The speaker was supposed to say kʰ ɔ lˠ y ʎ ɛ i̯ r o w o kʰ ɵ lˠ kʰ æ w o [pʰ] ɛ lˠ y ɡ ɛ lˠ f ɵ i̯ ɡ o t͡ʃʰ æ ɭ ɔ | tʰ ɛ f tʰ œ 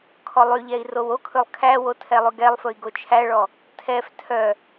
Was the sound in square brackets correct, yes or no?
no